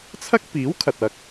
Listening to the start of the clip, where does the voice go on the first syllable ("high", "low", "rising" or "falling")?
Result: high